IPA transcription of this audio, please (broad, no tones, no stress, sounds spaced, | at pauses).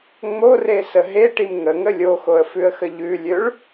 ŋ͡m o r e s ə ɦ e ʈ i m ŋ ə ŋ ə lʲ o x o ə̯ f ʉ ə̯ x ə ʎ ʉ lʲ ø ɭ